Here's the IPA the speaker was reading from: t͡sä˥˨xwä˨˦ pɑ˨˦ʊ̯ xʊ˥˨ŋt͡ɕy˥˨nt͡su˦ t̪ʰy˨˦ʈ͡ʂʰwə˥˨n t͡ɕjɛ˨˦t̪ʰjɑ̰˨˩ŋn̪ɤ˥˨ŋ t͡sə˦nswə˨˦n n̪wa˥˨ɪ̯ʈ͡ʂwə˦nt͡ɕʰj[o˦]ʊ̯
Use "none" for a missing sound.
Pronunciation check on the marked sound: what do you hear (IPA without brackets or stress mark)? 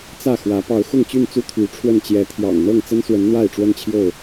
o˥˨